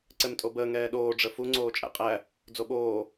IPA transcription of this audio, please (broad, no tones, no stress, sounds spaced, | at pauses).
ǀ ɛ m tʼ o b əː ŋ ɛː ɗ oː ɖ͡ʐ ə f u ŋ͡ǀ oː t͡ʃʼ æ̰ qʼ æ | d͡z o ɓ oː